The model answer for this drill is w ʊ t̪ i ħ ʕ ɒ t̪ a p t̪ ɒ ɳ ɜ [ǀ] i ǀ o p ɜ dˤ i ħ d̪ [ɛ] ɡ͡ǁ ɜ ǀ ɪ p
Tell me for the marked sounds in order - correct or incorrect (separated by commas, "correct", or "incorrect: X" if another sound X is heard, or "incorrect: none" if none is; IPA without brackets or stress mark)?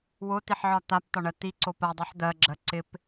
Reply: incorrect: t̪, incorrect: ɜ